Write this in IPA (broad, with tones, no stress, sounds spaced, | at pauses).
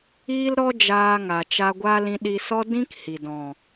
iː˦ l ɾ ɔ˦ d͡ʒ aː˧ ŋ a˨ t͡ʃ a˧ ɡʷ a˦ l ĩ˧ ɗ i˧ s ɔ˦ d ĩ˦ k h i˨ d ɔ̃˨